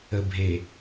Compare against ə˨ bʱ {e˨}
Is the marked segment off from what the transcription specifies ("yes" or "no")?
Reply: no